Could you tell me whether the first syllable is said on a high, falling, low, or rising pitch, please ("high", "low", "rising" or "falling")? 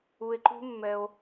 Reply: low